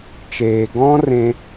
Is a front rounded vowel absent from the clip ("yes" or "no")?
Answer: yes